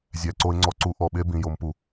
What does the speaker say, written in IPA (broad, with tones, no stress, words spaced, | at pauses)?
zʲæ˨ǀo˧ɪ̯ŋ͡ǀɔ˧ ǀu˧ʔɔ˨ɓe˦ bĩ˨jo˧mpu˨